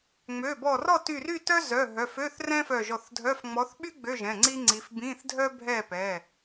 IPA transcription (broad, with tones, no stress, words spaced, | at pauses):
ŋ͡mø˩˧˩bɔ˧˩rɔ˥˨ ty˧˩ry˥˨ tœ˥zœ˩˧˩ ɦœ˩˧˩fø˧˥˧θ rɛ̃˥fœ˧˩ʒɔ˧˩θdʱœ˧˥˧f ŋ͡mɔ˨˦θɓy˥ ɡ͡bø˧˥˧ʒɛ̃˩˧˩ ŋ͡ǀi˥ŋ͡ǀi˨˦f bĩ˧˥˧θdʱœ˥ bʱɛ˥˨pɛ˩˧˩